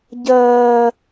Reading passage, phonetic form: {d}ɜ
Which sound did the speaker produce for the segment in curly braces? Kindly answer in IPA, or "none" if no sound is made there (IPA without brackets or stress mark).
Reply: ɟ